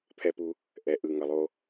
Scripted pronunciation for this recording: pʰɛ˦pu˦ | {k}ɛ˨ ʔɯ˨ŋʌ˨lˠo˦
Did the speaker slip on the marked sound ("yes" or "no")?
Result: yes